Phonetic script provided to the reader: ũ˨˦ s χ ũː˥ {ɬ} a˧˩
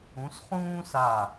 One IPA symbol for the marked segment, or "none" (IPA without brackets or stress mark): s